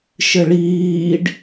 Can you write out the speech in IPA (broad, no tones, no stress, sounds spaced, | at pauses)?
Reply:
ʃ ɘ ɭ iː ɖ